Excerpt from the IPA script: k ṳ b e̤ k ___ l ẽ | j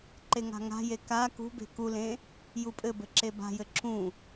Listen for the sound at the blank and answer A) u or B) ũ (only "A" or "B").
A